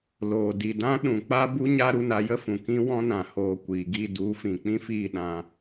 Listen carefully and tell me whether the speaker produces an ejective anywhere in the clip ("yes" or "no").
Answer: no